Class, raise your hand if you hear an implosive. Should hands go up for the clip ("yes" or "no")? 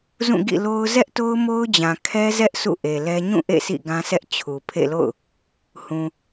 no